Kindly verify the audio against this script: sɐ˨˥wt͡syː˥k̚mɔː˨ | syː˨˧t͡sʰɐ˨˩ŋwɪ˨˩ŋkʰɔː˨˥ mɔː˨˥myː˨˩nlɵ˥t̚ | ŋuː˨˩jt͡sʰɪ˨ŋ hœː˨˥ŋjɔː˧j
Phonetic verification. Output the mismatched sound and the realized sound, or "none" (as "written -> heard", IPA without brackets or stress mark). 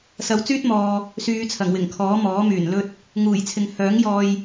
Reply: k̚ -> t̚